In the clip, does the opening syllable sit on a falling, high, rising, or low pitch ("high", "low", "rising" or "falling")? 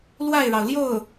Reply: falling